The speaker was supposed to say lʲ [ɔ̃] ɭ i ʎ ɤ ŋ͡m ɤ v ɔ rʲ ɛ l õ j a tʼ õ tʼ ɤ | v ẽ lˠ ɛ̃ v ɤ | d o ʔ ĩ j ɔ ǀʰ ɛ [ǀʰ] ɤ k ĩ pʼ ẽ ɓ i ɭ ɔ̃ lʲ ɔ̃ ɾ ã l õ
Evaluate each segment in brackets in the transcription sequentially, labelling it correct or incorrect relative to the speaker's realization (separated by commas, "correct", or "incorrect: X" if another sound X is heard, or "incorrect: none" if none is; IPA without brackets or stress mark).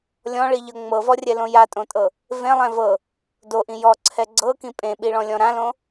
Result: correct, incorrect: ɡ͡ǀ